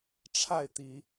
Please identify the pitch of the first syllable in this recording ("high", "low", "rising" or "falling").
falling